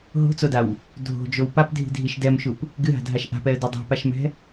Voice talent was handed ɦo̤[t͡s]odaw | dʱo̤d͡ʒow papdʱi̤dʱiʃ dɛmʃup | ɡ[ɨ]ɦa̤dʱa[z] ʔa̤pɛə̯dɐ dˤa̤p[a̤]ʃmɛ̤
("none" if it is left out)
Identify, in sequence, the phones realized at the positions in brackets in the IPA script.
t͡s, ɨ, ʃ, a

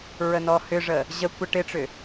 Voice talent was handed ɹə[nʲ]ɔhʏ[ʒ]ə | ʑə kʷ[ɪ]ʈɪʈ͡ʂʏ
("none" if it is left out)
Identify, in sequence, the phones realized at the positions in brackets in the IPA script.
n, ʐ, ə

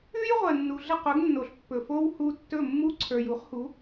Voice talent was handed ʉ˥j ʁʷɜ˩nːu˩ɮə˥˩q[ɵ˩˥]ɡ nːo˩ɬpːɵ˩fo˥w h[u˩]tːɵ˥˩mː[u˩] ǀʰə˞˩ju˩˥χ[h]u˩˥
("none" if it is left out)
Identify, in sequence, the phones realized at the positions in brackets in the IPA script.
ɵ˩˥, u˧, u˥, h

